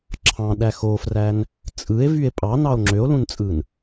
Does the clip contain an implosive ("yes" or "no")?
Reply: yes